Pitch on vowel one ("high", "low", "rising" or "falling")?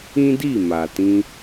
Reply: high